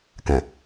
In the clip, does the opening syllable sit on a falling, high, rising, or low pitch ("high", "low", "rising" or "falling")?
low